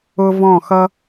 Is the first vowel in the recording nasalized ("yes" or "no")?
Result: no